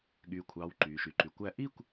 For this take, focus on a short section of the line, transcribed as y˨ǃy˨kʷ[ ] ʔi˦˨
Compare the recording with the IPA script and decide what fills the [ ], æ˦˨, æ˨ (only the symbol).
æ˦˨